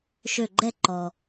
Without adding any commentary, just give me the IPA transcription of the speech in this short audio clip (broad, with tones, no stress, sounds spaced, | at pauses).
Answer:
ʃ ø˧˩ ɡ͡ǃ ɛ˥˨ ǃ ɔ˩